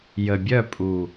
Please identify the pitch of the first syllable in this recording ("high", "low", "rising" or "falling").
low